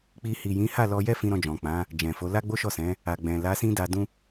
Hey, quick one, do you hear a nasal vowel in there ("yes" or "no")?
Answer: yes